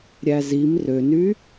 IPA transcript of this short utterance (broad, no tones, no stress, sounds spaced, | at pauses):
ɾʲ æ z i m r ø n y